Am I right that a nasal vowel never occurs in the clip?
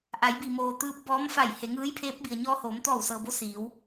yes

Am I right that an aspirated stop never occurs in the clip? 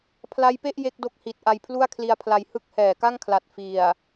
no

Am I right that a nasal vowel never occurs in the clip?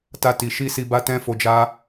no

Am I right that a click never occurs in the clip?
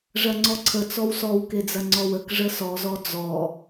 no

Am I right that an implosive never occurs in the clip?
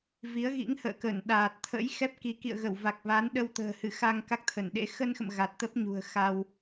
no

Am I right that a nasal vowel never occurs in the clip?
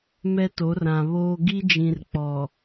no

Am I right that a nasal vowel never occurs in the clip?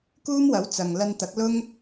yes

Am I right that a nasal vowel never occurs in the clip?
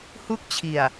yes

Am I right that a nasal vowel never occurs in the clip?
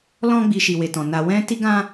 no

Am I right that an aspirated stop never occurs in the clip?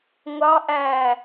yes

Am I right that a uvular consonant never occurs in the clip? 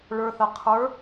no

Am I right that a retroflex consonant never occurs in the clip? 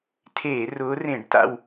no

